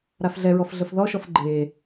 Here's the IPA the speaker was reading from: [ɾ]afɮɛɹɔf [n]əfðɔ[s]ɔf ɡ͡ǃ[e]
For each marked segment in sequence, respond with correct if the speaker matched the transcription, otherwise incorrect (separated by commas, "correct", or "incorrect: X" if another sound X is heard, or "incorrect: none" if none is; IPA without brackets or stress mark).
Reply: correct, incorrect: ɮ, incorrect: ʃ, correct